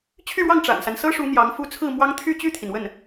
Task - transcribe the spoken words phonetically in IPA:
t͡ɕʰy˥˧ɻwɑ˥˩ŋ ʈ͡ʂa̰˨˩nsa˦nsɤ˥ʂu˧˥ n̪jɑ˧˥ŋfu˥˧ t͡sʰɹ̩˥˩mwɑ˥ŋ t̪ʰy˥˧t͡ɕy˥˩t̪ʰi˩n wə˥˩n

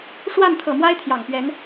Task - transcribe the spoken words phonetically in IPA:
ʂwa˥˨nt̪ʰɤ˨˩mwa˦ɪ̯ t̪ʰjɑ˨˩ŋpɥɛ˨˦n

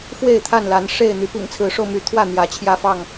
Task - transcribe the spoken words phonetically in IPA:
fwe˥˨ɪ̯t̪ʰa˥˨nla˨˦nʂe˥˨ɪ̯ n̪y˨˦pḭ˨˩ŋt͡sʰɹ̩˨˦ʂo˧ʊ̯ my˨˦t̪ʰwä˥˨ n̪jä˨˦t͡ɕʰjä˦fɑ˥˨ŋ

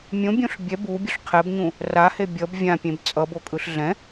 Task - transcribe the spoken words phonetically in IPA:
mʲõbʲõɬ bʲɛ bubʲoɬ qʰɛbɲũ | rahe bʲʌb vʲãpʲẽb t͡sʼʌbokʼɯɬ ɮɛ̃

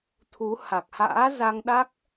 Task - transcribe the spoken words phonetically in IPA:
t̪ʰu˨˦ ha˨˩k̚ha̰ː˧˥ za˧ŋɗa˦˥k̚

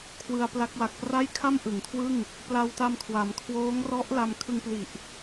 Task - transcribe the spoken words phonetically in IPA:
kʰwɯ˧a̯pla˦˥k̚ wa˨˩k̚pra˥˩j kʰa˥˩mʔɯ˩˦ŋkʰwɯ˥˩ŋ | pla˧wta˧mkʰwa˩˦m kʰwoː˦˥ŋ rɔ˦˥ʔla˧m kʰɯ˧ŋpli˨˩ʔ

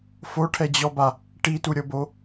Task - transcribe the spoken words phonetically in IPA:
foʈʰɛd͡ʑɔba | ʈituɾʲɤbo

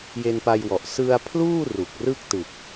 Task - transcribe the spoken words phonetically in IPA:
je˧npa˧jwɔ˨˩ʔ sɯ˧a̯pʰluː˥˩ ru˨˩k̚rɯ˥˩k̚tɯ˨˩k̚

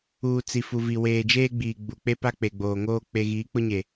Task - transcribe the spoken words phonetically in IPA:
uː˨ t͡si˨ fu˨vi˨ weː˨d͡ʒeː˦ɡ͡biː˨ ɡ͡bu˨k͡pe˦pa˦ k͡pe˨ɡ͡boː˨ŋoː˦ k͡pe˦ ɣiː˨˦k͡pʊ˦ɲe˨

